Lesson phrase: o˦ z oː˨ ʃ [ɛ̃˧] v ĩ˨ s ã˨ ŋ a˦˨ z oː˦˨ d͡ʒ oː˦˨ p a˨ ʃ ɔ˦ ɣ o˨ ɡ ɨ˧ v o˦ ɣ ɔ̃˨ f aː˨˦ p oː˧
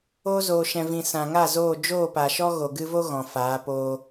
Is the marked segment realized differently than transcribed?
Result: yes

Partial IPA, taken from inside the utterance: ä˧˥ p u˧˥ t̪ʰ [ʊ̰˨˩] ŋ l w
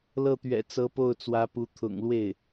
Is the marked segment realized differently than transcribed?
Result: no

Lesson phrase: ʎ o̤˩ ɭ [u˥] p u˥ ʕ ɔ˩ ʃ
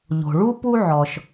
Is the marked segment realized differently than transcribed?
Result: no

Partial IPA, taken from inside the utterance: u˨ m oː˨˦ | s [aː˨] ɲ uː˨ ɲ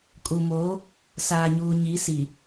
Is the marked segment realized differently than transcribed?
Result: no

